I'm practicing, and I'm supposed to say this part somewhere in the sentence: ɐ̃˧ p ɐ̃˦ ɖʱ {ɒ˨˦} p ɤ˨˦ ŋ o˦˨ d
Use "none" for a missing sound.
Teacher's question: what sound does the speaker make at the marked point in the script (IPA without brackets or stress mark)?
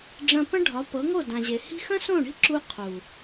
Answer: ɒ˨˦